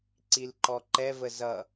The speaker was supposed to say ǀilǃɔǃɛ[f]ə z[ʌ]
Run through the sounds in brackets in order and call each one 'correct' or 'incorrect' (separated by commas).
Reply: incorrect, correct